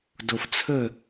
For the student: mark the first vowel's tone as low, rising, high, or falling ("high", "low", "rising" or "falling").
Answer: low